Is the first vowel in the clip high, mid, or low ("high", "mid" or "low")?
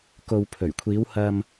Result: mid